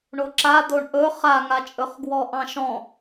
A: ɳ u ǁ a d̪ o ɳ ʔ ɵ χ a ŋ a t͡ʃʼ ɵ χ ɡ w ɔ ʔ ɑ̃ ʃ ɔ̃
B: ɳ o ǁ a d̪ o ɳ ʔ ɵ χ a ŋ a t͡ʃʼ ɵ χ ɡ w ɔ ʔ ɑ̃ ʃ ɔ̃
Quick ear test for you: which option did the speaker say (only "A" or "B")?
B